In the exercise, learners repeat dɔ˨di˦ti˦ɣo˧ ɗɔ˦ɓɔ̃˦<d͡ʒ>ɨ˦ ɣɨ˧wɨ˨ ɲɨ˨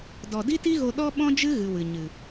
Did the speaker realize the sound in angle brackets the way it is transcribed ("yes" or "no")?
yes